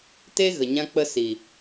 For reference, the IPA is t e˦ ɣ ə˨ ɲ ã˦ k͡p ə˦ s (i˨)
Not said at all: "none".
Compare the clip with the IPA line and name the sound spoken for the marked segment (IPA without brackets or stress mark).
i˨